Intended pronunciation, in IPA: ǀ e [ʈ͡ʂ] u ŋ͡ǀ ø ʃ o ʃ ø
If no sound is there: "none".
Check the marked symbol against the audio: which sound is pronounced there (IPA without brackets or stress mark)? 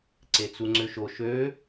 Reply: t͡s